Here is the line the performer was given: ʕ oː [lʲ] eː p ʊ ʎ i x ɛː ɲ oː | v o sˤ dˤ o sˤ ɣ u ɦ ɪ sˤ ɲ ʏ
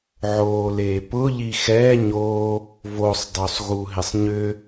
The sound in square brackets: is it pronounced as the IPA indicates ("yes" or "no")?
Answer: no